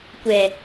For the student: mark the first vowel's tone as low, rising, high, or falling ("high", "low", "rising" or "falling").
low